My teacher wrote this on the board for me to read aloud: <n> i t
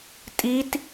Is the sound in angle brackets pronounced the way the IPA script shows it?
no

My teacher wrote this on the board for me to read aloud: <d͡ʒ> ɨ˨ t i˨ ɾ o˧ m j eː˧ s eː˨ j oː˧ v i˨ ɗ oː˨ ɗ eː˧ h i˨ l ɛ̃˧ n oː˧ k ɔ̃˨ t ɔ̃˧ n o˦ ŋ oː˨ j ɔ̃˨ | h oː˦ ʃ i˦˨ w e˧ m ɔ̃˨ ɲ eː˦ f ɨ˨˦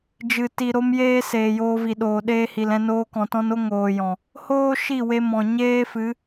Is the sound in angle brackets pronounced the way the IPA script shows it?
yes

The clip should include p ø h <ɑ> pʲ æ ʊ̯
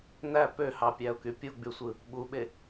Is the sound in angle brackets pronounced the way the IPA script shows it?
yes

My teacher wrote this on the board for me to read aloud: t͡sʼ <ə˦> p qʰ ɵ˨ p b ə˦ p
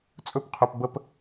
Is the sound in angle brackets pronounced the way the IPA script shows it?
no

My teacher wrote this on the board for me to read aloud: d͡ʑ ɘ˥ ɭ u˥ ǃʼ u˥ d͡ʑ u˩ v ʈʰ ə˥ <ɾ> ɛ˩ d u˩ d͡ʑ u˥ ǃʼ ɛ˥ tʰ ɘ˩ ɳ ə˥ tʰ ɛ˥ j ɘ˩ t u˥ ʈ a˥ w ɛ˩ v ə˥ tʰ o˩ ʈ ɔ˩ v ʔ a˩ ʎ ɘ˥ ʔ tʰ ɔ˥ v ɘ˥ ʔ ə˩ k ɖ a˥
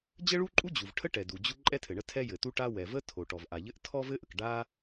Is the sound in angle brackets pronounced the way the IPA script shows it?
no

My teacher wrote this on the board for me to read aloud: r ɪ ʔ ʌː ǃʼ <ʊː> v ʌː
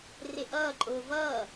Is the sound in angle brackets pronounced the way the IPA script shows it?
yes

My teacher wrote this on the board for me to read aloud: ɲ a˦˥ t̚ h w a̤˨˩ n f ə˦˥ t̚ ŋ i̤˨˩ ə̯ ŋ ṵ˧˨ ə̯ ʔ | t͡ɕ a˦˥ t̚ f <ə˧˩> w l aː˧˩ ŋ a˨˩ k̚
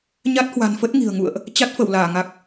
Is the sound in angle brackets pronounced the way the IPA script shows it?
yes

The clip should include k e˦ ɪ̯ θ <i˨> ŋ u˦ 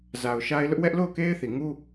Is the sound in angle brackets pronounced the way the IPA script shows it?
yes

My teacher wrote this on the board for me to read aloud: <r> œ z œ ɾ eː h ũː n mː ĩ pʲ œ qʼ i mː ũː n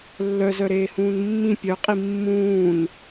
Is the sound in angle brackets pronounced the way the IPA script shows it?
no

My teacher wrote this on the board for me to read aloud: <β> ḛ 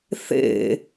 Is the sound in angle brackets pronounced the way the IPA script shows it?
no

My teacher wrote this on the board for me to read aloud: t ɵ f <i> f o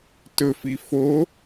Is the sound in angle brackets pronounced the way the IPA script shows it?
yes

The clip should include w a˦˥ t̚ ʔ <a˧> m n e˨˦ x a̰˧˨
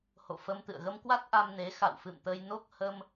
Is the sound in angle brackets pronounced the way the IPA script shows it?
yes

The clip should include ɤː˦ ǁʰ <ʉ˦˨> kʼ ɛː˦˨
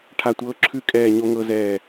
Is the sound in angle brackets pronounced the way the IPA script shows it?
yes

